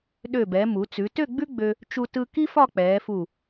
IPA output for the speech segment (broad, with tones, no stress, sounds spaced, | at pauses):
ɗ ø˧˩ b ɛ˩˧ m u˩˧ t͡s ʉ˩˧ t ø˥˧ ɡ͡b ʉ˥ ɡ͡b ø˧ | t͡ʃ u˧ t ɯ˧ k i˥ f ɒ˥˧ k͡p ɛː˩˧ f u˧˩